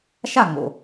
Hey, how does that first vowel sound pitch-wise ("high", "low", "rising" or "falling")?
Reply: falling